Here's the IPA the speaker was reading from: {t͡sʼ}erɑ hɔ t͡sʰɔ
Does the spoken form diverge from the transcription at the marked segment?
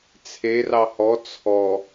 yes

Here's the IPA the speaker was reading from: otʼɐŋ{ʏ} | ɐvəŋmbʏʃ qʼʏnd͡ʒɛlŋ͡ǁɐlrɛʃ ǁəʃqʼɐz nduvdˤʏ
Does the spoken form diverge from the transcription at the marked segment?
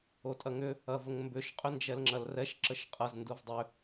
no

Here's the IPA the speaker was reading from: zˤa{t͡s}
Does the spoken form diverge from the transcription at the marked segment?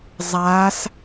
yes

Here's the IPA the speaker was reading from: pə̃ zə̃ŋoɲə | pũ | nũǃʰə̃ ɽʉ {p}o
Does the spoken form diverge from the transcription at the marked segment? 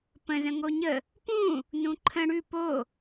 no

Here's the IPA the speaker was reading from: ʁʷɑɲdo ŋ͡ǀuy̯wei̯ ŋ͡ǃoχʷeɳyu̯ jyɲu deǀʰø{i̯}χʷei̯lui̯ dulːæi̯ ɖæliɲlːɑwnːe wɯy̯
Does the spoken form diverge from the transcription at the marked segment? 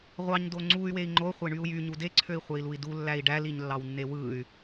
no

